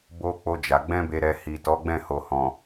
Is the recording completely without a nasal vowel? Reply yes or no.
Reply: no